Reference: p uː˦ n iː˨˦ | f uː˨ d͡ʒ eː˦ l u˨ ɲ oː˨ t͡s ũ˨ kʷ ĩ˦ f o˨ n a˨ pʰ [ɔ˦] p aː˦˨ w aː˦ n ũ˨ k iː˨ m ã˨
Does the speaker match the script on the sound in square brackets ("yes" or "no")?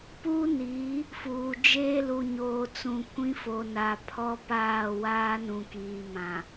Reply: yes